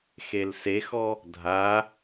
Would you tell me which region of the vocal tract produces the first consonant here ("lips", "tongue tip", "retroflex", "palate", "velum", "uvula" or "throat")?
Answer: velum